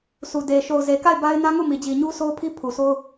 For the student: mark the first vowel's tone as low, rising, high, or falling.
low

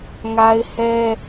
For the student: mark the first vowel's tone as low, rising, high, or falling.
high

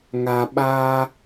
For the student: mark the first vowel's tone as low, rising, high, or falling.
low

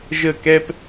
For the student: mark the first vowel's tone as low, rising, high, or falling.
falling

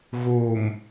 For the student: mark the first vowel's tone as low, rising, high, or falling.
low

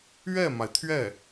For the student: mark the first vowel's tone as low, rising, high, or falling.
falling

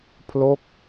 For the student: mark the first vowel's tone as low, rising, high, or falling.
falling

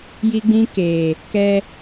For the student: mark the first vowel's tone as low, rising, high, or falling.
high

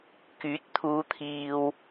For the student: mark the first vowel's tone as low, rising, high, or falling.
rising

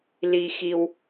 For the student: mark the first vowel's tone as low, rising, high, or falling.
high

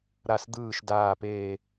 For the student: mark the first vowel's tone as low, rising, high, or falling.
low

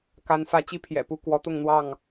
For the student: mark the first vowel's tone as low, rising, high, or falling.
rising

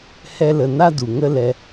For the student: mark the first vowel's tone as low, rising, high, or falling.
high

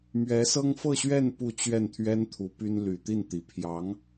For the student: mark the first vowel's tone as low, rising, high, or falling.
rising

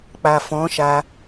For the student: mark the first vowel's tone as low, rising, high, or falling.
low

